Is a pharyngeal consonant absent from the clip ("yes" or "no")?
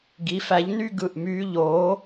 yes